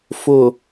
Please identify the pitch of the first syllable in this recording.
low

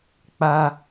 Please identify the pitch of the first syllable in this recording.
high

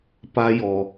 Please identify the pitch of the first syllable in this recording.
high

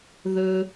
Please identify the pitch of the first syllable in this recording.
low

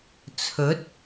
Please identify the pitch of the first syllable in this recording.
rising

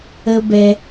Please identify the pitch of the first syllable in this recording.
high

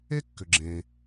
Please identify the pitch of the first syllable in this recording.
high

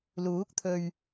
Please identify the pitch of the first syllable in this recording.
rising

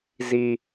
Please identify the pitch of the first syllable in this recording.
high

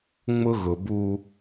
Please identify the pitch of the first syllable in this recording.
high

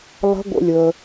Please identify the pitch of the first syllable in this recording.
rising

